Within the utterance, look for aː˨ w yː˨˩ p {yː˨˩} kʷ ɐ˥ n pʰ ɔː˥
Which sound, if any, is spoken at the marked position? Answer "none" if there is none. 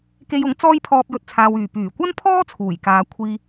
yː˨˩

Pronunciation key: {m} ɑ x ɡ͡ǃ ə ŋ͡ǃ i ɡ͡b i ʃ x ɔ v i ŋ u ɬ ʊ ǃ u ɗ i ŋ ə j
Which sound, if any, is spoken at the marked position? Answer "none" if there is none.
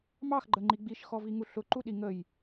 m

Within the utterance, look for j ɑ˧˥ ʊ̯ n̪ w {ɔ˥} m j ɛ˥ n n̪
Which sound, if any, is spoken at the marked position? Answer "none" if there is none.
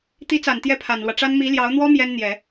ɔ˥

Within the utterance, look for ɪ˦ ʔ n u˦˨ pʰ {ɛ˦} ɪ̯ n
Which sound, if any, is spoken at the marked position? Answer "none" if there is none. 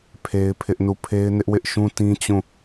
e˦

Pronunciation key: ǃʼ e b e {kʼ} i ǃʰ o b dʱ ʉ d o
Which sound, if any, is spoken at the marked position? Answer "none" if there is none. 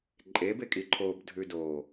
kʼ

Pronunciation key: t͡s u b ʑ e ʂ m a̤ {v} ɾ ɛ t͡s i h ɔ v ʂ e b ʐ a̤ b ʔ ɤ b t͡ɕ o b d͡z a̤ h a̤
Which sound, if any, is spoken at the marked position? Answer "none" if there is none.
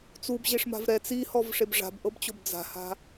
v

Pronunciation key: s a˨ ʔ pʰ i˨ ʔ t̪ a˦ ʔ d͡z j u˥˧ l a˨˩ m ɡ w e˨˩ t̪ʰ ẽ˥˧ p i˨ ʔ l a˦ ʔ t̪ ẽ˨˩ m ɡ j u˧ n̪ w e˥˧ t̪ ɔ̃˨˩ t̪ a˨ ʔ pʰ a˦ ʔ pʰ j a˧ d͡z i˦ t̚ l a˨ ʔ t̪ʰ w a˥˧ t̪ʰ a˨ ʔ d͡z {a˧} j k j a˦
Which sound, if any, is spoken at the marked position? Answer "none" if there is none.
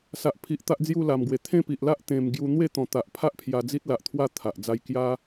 a˥˧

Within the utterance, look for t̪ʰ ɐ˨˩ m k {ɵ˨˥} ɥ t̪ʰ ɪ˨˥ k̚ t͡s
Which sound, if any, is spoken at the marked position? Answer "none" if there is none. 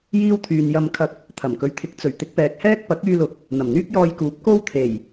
ɵ˨˥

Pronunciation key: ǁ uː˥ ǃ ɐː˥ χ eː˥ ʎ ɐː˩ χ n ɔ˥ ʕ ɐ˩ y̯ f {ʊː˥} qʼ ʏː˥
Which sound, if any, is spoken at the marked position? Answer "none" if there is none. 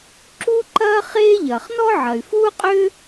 uː˥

